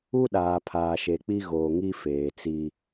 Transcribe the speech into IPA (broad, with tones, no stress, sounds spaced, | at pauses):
u˦ ɗ aː˨ pʰ aː˨ ʃ e˨ k͡p i˦ ɣ oː˨ ŋ i˦ f eː˨ t͡s i˦